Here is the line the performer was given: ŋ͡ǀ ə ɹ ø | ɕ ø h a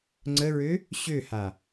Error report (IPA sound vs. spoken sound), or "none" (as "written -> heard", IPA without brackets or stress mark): none